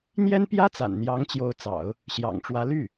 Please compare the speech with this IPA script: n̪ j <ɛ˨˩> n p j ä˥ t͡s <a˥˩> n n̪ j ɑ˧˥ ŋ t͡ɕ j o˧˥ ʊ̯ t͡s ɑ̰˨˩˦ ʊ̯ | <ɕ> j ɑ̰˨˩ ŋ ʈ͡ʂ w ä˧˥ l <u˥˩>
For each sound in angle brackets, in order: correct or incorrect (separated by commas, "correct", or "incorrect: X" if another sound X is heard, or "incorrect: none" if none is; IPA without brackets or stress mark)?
incorrect: ɛ˥, incorrect: a̰˨˩, correct, incorrect: y˥˩